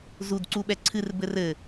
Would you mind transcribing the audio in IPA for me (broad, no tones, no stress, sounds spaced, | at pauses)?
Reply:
z u d ǀ u ɓ ɛ ǀʰ ɨ r b ɘ r ɘ